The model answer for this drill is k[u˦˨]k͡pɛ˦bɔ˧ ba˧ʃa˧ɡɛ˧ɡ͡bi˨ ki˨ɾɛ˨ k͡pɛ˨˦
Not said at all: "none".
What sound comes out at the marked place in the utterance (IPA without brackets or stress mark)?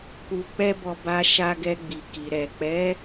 u˧